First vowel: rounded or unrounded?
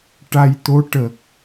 unrounded